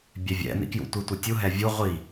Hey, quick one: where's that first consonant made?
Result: lips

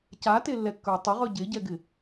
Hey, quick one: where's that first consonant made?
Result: palate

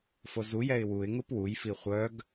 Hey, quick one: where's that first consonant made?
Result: lips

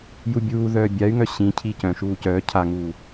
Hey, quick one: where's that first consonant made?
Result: palate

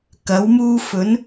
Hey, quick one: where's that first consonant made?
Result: velum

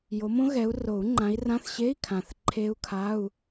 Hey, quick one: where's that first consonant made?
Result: palate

